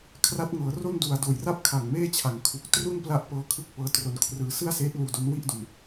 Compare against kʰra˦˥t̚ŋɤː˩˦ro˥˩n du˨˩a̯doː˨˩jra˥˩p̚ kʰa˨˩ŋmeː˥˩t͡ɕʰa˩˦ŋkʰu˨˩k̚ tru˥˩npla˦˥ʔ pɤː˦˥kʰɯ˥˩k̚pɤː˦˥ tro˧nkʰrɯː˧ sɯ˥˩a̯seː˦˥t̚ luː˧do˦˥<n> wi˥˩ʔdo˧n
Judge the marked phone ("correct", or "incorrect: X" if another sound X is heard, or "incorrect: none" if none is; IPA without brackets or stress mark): correct